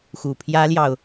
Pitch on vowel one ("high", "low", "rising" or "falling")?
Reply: low